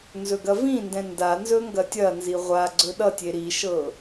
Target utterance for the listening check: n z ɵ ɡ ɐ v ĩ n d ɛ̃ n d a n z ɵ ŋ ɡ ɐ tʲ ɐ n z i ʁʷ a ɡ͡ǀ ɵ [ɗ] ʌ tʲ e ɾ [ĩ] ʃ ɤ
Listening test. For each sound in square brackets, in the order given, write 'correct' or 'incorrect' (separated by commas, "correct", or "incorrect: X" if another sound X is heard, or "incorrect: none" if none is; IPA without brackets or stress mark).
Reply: correct, incorrect: i